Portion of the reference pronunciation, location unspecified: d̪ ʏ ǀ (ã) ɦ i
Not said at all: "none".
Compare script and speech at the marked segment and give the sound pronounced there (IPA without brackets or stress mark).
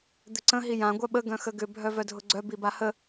ə̃